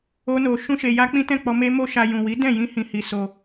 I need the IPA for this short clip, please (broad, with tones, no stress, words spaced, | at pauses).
o˦no˧ ʃũ˦ʃe˧ja˦ k͡pĩ˦tɛ̃˦˨k͡pɔ˧ me˦mo˦ʃa˧ jũ˨wi˨˦dɛ̃˦˨ jĩ˧hĩ˨hi˨ so˧